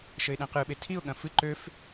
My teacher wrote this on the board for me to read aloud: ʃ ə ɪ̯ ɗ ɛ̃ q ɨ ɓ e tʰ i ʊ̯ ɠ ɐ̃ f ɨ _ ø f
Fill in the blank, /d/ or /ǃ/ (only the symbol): ǃ